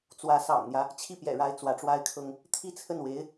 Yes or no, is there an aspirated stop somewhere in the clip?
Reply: yes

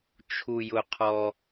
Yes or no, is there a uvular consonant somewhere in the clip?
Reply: yes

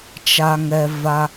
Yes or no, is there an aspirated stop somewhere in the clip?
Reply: no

